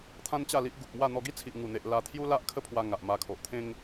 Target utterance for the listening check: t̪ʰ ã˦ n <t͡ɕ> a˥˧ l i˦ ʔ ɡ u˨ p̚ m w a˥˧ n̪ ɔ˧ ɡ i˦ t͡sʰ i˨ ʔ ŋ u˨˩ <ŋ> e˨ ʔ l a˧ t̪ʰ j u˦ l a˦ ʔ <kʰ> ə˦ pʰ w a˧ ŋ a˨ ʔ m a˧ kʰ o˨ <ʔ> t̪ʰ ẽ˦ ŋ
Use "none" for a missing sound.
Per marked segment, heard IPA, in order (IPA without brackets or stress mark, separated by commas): t͡ɕ, n̪, kʰ, ʔ